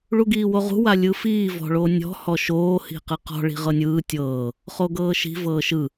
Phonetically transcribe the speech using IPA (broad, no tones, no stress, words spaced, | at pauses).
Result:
ɭuɡiːwoʁṳ walʲɯfiː vɔ̤ɭonʲɔ̤ hɔʃoː hi̤qɯqɔ̤ ɭi̤ʁɤnʲɯː tʲɤː | χoɡɤːʃi̤ vɤːʃɯ